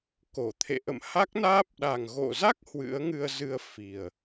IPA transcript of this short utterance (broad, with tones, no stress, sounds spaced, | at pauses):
k o˧˩ t̪ʰ ḛ˧˨ ʔ ə̰˧˨ m h a˦˥ k̚ n aː˦˥ p̚ ɗ a˨˩ ŋ ɣ o̰˧˨ z a˦˥ k̚ h w ɨ̰˧˥ ə̯ ŋ ɨ˧ ə̯ z ɨ˧ ə̯ f i˨˩ ə̯